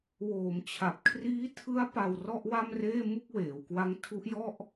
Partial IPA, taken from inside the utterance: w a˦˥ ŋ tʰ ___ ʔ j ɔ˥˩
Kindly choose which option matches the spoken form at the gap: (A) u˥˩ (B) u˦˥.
B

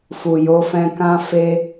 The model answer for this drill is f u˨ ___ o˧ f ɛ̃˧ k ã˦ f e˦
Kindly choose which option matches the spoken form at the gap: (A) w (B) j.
B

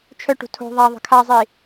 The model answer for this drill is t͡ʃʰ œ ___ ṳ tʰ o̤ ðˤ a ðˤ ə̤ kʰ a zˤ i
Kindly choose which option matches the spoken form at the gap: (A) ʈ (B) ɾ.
A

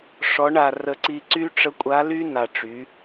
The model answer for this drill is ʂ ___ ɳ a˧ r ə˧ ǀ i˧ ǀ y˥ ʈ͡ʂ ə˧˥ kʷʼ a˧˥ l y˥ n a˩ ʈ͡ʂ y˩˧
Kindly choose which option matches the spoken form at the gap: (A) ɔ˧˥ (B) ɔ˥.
A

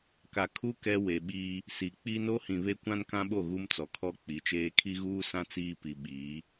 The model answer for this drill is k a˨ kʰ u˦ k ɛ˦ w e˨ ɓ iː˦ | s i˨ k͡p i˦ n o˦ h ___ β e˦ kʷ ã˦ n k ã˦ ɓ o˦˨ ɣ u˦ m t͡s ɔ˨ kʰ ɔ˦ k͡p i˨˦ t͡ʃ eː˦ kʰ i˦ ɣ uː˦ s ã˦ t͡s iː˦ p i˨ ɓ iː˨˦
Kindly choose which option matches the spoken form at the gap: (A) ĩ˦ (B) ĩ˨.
B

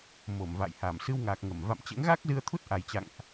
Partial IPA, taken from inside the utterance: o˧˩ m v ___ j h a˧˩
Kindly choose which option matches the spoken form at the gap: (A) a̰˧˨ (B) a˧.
A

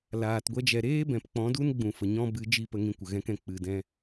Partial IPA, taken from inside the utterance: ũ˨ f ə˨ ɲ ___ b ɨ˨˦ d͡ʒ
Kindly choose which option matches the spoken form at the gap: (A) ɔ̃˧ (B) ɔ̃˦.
B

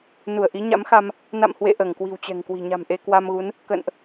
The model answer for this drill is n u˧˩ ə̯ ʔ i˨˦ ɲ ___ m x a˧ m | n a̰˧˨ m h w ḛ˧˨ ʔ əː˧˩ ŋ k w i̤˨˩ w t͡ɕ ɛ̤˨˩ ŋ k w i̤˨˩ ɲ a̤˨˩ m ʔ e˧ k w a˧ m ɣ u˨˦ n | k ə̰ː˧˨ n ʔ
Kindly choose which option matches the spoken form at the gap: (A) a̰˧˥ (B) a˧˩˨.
A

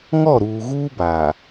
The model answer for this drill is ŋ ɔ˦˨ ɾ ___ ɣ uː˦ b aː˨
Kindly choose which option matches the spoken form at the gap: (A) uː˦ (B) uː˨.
B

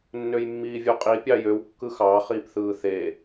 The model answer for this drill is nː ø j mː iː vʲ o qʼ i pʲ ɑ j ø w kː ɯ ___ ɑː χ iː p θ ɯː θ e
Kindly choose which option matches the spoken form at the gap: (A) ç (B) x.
B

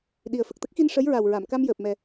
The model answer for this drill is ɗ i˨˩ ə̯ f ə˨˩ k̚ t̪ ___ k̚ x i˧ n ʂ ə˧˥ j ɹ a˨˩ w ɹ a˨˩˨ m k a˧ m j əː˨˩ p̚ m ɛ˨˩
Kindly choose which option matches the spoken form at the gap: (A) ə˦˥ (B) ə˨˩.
A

